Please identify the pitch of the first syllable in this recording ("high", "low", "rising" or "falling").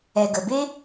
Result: low